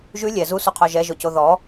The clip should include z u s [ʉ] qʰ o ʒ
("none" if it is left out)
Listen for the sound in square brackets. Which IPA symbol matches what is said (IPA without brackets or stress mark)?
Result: u